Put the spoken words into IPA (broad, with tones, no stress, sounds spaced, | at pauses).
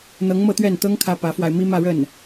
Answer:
n̪ ɤ˧˥ ŋ m ɤ˥˧ t̪ ɥ ɛ˥˩ n t̪ ɤ˥ ŋ kʰ ä˥ p ä˧˥ f w a˧ ɪ̯ m i˥ m ä˥˧ ɻ ə˥˩ n